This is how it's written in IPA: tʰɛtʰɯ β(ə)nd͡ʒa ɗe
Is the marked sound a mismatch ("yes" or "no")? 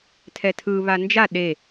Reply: yes